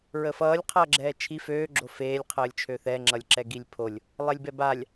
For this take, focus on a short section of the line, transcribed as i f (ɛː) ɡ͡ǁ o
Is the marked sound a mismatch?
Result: yes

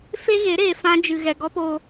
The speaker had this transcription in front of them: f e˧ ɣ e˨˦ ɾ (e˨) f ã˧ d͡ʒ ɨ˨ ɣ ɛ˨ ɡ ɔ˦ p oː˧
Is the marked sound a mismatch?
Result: yes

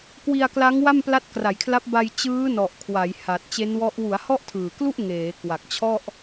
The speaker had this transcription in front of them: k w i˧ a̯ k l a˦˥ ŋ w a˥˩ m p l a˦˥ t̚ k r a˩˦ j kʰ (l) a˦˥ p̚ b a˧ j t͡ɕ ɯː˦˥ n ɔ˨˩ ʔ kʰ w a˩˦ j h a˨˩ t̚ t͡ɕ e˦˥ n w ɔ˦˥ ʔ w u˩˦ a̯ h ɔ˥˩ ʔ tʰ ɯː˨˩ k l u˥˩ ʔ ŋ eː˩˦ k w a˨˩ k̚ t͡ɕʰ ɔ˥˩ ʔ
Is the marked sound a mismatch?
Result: no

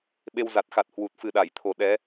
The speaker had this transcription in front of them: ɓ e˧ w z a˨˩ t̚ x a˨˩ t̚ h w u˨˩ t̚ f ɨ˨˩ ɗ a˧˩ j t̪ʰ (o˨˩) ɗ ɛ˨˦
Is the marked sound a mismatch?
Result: no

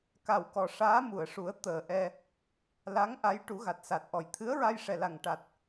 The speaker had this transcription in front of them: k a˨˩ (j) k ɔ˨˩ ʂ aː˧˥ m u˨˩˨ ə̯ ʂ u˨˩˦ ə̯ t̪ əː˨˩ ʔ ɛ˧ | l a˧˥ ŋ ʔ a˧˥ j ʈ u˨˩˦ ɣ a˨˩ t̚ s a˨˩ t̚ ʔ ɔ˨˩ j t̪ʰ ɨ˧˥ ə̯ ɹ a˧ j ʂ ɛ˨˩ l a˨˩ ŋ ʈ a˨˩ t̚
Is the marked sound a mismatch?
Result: yes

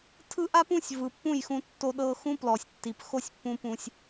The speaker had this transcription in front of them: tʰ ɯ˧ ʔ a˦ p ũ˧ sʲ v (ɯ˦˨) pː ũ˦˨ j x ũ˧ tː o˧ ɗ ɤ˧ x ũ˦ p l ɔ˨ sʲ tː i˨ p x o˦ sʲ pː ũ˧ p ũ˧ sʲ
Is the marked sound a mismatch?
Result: yes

